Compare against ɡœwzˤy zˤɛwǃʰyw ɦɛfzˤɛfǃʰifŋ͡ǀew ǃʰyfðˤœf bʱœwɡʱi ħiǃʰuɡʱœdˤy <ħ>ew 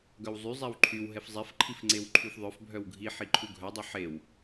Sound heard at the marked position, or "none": ħ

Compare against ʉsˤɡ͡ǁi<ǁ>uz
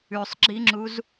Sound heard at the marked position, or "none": ŋ͡ǁ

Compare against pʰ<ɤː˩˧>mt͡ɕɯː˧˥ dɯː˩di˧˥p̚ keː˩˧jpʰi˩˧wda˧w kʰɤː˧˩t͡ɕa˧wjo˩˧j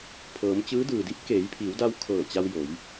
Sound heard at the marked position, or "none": ɤː˩˧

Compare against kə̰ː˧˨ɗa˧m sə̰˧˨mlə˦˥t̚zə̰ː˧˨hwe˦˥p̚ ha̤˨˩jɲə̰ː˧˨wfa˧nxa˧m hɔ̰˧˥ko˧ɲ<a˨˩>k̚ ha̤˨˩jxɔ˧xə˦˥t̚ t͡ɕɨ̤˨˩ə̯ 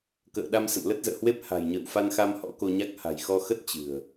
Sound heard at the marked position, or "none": a˦˥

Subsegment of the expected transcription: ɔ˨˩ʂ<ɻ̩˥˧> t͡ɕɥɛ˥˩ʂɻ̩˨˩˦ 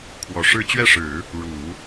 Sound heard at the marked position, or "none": ɻ̩˥˧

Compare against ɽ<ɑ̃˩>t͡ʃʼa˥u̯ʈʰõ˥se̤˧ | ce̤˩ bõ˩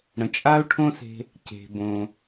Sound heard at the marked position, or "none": ə̃˩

